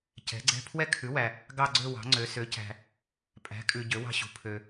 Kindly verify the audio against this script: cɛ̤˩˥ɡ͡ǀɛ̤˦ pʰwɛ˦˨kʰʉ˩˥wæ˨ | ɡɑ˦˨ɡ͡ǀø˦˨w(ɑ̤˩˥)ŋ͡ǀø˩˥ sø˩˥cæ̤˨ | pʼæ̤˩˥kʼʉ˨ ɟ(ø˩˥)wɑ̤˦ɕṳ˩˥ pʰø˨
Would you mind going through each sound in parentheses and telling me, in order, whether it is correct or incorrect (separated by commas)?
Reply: correct, correct